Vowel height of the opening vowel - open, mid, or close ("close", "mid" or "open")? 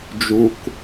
close